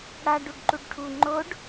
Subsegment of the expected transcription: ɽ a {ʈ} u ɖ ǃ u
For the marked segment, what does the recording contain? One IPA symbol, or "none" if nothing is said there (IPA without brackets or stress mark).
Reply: ɖ